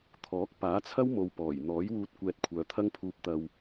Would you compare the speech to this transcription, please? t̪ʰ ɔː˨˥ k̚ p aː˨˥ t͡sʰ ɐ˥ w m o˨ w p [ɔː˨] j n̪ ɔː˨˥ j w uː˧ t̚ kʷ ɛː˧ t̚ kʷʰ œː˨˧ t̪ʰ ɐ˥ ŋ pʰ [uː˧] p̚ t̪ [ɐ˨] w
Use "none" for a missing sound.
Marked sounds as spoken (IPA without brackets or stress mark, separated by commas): ɔː˨˩, uː˧, ɐ˧